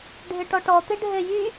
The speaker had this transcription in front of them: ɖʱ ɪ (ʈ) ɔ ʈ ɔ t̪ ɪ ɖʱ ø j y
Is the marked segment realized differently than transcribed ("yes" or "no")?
no